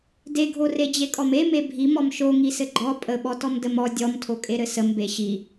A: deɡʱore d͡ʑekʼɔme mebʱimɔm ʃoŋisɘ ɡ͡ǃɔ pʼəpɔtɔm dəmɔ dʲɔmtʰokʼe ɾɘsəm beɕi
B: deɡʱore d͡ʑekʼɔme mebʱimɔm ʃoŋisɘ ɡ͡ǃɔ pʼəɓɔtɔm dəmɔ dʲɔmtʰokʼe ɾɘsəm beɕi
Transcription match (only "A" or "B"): B